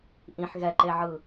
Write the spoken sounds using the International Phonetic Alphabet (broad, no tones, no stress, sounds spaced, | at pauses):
ʔ ĩ ħ ɣ ɛ ǃ e ʕ ɯ